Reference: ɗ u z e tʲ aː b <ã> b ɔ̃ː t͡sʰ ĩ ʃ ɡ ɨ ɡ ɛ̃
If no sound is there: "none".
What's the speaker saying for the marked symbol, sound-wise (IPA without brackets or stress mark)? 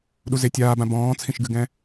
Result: ã